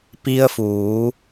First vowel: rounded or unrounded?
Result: unrounded